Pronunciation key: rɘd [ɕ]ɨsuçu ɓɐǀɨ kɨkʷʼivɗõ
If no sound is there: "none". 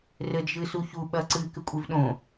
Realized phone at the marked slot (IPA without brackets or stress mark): ʒ